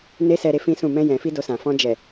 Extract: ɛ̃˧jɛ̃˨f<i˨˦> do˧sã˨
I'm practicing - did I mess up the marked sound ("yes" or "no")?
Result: yes